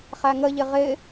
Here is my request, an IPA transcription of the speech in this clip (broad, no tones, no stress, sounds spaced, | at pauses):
χ æ ŋ ə ʎ ɪ ʁ ɪ